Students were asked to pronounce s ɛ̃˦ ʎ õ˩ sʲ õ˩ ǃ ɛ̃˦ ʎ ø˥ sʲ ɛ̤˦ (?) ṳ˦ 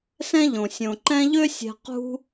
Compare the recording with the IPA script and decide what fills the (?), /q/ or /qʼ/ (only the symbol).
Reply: q